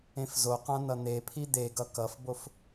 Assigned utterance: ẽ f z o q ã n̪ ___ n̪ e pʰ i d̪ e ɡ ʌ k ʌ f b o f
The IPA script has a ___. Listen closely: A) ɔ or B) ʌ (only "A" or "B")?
B